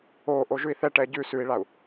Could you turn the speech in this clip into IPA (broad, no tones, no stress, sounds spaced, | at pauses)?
oː ʔ o ʒ ʉ i̯ θ ɛ ʈ ɛː ɟ ʉ s ʉ i̯ ɭ a u̯